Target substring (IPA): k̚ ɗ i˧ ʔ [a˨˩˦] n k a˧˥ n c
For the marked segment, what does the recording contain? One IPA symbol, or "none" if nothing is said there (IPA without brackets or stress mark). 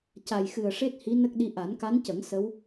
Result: a˨˩˦